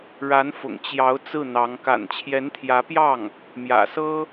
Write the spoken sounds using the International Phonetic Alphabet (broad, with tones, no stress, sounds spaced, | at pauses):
ɻ a˧˥ n f ʊ̰˨˩ ŋ t͡ɕ j ɑ˧˥ ʊ̯ t͡s ɹ̩˥˩ n̪ ɑ˧˥ ŋ k a̰˨˩ n t͡ɕʰ j ɛ˧˥ n t̪ʰ j ä˧˥ p j ɑ˥˩ ŋ | m j ä̰˨˩ s ɤ˥